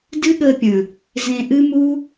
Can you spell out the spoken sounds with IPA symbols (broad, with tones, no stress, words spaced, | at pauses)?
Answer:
dɨ˦ɠəː˧pʲə̃˨ | zẽ˨ʔɨ˧mu˧